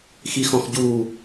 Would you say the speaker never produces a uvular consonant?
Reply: yes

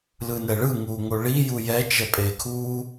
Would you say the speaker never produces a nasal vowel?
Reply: yes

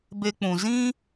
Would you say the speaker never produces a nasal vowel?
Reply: no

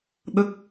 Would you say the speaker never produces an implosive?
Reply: no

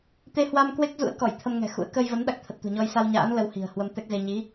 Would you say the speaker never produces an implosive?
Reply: no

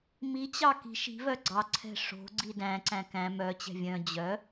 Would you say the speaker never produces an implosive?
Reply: yes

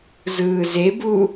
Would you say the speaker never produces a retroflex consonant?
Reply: yes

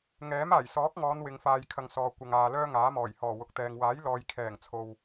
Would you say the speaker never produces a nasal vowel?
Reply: yes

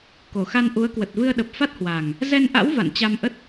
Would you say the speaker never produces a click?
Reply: yes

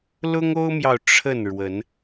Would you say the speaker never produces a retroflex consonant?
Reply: no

